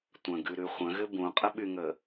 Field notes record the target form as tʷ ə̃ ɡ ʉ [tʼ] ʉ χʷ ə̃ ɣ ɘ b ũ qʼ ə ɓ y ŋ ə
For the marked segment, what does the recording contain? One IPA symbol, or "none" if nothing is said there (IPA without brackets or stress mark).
ɾ